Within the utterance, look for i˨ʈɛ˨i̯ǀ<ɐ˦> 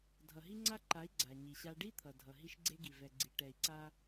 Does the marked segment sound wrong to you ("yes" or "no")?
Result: yes